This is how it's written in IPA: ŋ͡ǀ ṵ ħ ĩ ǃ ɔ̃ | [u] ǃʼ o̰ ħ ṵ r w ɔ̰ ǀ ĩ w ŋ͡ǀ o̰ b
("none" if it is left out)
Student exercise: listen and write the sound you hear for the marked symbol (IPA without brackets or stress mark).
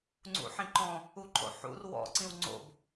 u